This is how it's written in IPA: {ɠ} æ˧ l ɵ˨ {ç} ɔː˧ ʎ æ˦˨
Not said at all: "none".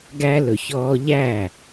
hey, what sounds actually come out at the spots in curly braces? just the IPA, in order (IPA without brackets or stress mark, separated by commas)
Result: ɡ, ç